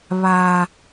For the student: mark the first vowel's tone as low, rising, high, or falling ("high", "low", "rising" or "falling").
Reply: low